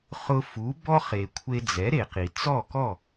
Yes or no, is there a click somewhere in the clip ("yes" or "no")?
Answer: no